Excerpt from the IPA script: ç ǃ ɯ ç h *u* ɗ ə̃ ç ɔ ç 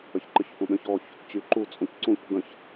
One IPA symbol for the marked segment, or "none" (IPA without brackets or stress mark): ũ